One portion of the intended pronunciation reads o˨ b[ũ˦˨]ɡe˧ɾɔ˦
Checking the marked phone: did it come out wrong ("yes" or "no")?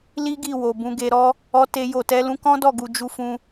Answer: yes